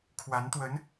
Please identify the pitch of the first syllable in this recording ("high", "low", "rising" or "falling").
rising